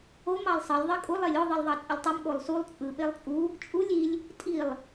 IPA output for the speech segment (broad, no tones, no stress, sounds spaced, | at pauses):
o m ɑ lˠ sˤ ɘ lʲ ðˤ e kʼ u lˠ e lʲ o ðˤ ɯ lˠ ðˤ ɑ t͡sʼ ɘ lʲ tˤ ɯ m ɠ o lˠ s u lˠ t͡sʼ ɯ ɓ e lˠ t͡sʼ u | t͡ʃʼ u lʲ i lʲ | tʼ i lˠ